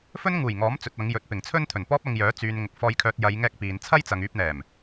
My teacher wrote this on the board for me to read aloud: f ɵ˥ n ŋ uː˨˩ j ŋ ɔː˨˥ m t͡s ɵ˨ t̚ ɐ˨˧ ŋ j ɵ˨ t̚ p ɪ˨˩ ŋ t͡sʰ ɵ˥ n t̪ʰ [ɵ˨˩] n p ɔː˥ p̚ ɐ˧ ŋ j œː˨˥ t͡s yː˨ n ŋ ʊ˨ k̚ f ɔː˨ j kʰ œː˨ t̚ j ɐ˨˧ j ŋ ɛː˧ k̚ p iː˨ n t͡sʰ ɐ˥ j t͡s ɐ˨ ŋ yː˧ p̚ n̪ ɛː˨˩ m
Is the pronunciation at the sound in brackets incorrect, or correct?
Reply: correct